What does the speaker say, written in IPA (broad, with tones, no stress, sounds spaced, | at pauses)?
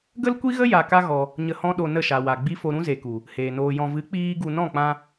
ɡ ə˦ l kʷ i˦ ɣ ə˦ j a˨ k a˦ ɣ ɔ˧ | ɲ ə˧ h ɔ̃˦ ɗ o˧ n ə˦˨ ʃ a˨ w a˨ ɡ͡b i˦ f o˧ ɾ ũ˦ z e˨ k u˨ | h eː˨ n oː˧ j ɔ̃˧ v ɨ˨˦ k͡p iː˦ ɡ u˧ n ɔ̃˦˨ k͡p ã˧